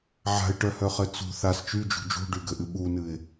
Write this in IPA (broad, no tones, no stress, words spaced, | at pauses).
ʕa̤ɪ̯ʈœhœχɘ t͡sṳ θas t͡ʃyd͡ʒṳ d͡ʒṳɖyɡɘʔɨ ɓunɨɪ̯